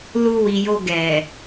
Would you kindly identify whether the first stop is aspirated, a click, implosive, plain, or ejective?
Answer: plain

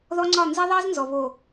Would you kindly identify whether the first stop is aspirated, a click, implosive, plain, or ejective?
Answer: click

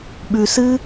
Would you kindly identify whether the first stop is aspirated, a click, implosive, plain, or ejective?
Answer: implosive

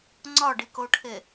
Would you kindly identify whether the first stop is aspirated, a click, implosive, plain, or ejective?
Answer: click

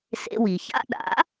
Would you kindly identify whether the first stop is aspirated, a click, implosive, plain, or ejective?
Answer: implosive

